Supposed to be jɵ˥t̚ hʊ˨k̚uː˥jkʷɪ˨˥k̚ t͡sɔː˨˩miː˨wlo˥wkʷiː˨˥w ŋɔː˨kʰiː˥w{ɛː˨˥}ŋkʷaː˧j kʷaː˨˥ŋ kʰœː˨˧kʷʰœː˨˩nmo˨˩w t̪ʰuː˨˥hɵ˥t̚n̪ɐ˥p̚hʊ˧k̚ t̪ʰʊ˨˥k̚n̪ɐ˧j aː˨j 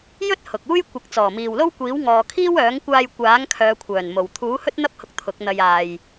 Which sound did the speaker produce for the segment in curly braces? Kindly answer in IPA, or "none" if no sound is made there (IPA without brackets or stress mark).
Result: œː˨˥